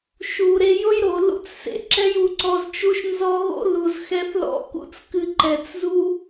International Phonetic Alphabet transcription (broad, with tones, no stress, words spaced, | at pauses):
ʃu˧ ɾe˧jʊ˦jɾo˨ lṵ˦t͡ssḛ˧ǁɛ˦j u˨˦ǀɔ˧zt͡ʃu˦ʃnzɔ˦ ɣo̰˦lu˨z xɛ˦θlɔ̰˦ kṵ˦t͡skɨ˧ ǃɛ˨t͡szu˦